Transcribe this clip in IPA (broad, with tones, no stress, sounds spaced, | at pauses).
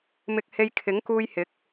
m ɪ˧ k̚ h e˧ j kʰ ɪ˨˥ ŋ k uː˧ j h ɪ˨˥ k̚